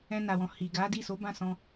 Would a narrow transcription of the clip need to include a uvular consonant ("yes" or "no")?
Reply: no